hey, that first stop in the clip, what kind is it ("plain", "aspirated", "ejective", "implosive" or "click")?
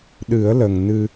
implosive